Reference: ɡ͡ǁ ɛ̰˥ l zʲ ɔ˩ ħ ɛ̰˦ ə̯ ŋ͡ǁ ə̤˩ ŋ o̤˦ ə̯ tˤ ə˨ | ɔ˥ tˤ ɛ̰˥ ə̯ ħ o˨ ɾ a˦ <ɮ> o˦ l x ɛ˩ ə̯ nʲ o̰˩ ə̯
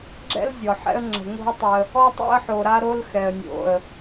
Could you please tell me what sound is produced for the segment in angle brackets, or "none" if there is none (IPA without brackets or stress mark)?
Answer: ɾ